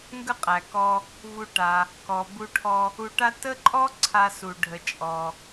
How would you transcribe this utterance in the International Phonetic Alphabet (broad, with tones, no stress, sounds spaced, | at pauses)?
ŋ ɡ ə˥ qʼ æ˩ k ɔ˧ | v u˧ ʈ a˩ | k ɔ˩ b u˧ ʈʰ ɔ˧ | u˧ ʈ a˥ t ə˥ ǃʼ ɔ˥ ǀʰ a˧ s u˩ ɖʱ ə˩ t͡ʃʼ ɔ˩